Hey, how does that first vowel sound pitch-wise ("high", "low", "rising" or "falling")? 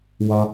low